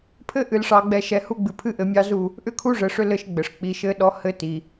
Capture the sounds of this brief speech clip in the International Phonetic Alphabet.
pʰ ɘ˦ ʔ ɨ˨ l ʂ ɑ˨ ɡ͡b ɛ˨ ʃ ɛ˨ h u˦ ɡ͡b ɨ˨ pʰ ɨ˦ ʔ ɘ˨ mʲ ɑ˦ z u˦˨ | ʔ ʏ˦ kʰ u˦ ʐ ɘ˨ ʂ ʏ˦ l ɘ˦ ʃ ɡ͡b ɘ˨ ʂ k͡p i˨ ʃ ɘ˦ ɗ ɔ˦ h ɘ˦ t i˨

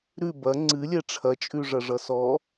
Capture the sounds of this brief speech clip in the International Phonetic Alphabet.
ɾ ʉ b ɐ ŋ͡ǀ ɨ lʲ ɛ ʈ͡ʂʰ ɐ t͡ʃʼ ʉ ʐ ɐ ʐ ʌ s ɔ

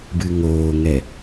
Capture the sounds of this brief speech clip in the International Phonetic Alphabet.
b ɨ ŋ oː ŋ ɛ

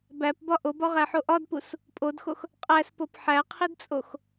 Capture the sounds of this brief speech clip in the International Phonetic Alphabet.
b æ p b ɒ ʔ o b ɒ ʁ æ ħ o ʔ ɒ d p u s | pʼ o d x o x | qʼ æ s p o p ħ æ qʰ i d t͡sʼ o x

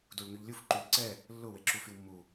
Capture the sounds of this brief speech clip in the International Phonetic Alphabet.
d u ɭ ŋ y ʎ lʲ u f ǃ y ʎ ǀ ɛ | lː ʊ w e ǁ u f y w mː u

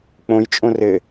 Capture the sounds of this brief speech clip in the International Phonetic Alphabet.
k͡p õ j t͡ʃʼ õ r ɘ

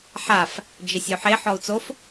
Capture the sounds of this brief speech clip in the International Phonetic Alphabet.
ħ a f | d͡ʒ ɪ sʲ o ħ e ħ ɔ u̯ t͡s o f

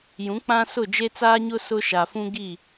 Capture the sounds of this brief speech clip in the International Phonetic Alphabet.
j ũ˨˦ k͡p ã˦ s ʊ˦˨ d͡ʒ e˦ t͡s aː˦ ɲ ʊ˦ s ʊ˦ ʃ a˨ f ũ˦ ɡ i˦˨

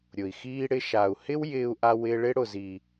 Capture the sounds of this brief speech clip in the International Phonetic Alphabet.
ɾʲ ʊ˨ i̯ x iː˧ ɽ ɪ˧ ʃ a˨ u̯ h ɪ˦ w j ɪː˧ u̯ ʔ a˧ w ɪː˧ ɭ ɪ˦ ɽ ʊ˨ z i˨

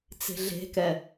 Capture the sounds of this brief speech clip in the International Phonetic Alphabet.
t͡s e̤ ɮ e̤ k ɛ

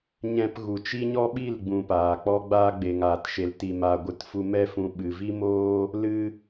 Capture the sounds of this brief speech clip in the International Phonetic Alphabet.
ɲ ɛ̃˧ p ɣ u˨ t͡ʃ i˦ ɲ ɔ˦ ɓ i˦˨ l ɡ͡b ũ˨ p aː˨ k͡p ɔ˦ ɡ͡b aː˧ ɡ͡b e˨ ŋ aː˨ t ʃ e˨ l t i˧ m aː˧ ɡʷ ɨ˦ t f u˦ m ɛ˦ f ũ˧ ɓ ɨ˨ v i˦ m oː˦ | l ɨ˦

